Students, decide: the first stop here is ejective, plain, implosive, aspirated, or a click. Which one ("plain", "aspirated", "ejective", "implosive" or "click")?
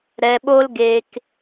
implosive